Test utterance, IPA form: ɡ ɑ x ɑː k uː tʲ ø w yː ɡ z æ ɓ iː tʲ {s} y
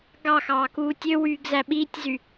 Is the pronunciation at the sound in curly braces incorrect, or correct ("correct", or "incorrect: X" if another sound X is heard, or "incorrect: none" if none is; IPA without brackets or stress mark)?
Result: incorrect: z